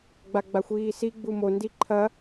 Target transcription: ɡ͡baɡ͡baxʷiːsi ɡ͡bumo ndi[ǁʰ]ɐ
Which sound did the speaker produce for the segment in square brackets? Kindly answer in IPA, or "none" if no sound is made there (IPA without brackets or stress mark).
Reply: ǃʰ